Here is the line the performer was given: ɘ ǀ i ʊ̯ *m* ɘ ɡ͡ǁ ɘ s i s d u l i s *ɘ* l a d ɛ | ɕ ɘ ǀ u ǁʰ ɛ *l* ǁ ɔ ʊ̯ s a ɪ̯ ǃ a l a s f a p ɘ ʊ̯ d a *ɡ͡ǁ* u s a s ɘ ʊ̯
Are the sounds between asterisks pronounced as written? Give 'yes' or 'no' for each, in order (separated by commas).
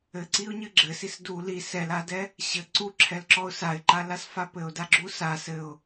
no, no, yes, yes